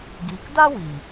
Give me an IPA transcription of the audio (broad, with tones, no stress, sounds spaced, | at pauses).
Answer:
ɡ iː˨ k d a˦ w iː˨